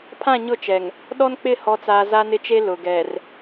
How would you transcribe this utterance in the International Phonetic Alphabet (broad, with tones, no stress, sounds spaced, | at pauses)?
pʰ ã˦˨ ɲ ʊ˦˨ t͡ʃ ɛ˨ ŋ | ɗ ɔ˦ n k͡p ɪ˦˨ h ɔ˨ t͡s aː˨ z a˦ n ɪ˦ t͡ʃ e˦ l ʊ˨ ɡ ɛ˨ r